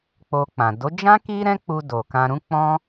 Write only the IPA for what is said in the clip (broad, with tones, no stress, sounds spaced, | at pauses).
k͡p o˧ k͡p ã˨ d o˨˦ d͡ʒ ã˦ k i˦ ɾ ɛ̃˦ k͡p u˧ d o˨ k ã˧ ɾ ũ˦ k͡p ɔ̃˦